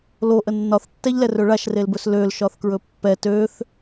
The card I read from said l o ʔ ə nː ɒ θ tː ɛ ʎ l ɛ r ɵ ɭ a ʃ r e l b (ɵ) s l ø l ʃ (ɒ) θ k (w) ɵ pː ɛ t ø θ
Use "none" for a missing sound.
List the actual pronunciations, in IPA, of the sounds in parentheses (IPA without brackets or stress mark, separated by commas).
ɵ, ɒ, ɹ